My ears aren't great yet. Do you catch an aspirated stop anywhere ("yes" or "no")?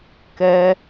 no